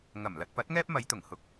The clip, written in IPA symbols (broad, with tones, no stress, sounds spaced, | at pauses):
ŋ ɐ˨˩ m l ɐ˧ t̚ p ɐ˨˥ t̚ ŋ ɛː˥ p̚ m ɐ˨˧ j t̪ ʊ˨˩ ŋ h ʊ˨˥ k̚